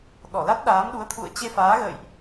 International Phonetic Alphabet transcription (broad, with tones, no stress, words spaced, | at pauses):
ɗɔ˧˩la˦˥t̚ ɗaː˨˦mɗu˨˦ə̯ t̪ʰṵ˧˨ə̯ t͡ɕe˧faː˨˦ɣə̰ː˧˨jʔ